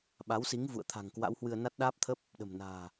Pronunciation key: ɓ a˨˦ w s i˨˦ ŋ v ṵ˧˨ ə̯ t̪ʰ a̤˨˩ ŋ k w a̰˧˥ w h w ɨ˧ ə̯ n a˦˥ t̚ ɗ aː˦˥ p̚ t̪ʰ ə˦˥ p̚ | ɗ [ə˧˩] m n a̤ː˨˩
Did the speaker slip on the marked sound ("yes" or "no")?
yes